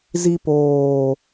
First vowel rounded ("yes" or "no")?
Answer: no